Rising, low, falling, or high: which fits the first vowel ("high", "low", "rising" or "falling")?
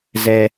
high